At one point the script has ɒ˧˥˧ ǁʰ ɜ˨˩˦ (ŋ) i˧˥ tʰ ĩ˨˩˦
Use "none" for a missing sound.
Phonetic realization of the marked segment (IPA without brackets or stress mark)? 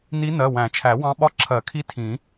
kʰ